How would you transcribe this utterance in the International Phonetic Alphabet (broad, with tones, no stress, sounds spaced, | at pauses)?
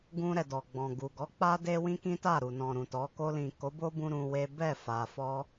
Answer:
ɡ ũ˧ ɾ ɛ˨ d ɔ˨ ɡ͡b ɔ̃˨ ɡ u˨ ɡ ɔ˨˦ k͡p a˧ d e˧ w ĩ˧ k ĩ˦ t a˦˨ ɾ u˨ n ɔ̃˨ ɾ ũ˨ t ɔ˨˦ k o˧ l ĩ˨ k o˨˦ b o˦ b ũ˧ ɾ ũ˧ w e˦ b ɛ˦˨ f a˨ f ɔ˧